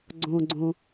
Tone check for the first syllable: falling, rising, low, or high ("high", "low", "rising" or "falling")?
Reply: low